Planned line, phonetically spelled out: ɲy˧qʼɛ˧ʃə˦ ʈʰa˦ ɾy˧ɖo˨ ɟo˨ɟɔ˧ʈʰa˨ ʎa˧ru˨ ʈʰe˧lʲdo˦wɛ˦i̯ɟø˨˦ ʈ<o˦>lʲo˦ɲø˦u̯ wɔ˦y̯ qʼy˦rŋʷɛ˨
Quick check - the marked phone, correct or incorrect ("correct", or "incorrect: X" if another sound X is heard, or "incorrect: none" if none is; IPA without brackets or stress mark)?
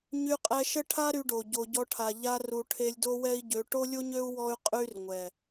correct